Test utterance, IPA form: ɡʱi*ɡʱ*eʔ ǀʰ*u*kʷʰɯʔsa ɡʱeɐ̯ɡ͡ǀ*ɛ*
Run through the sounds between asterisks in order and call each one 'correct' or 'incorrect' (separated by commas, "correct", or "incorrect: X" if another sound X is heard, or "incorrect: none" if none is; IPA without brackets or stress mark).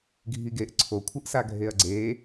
incorrect: ɡ, incorrect: o, incorrect: e